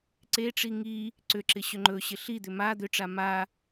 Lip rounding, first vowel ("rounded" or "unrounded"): unrounded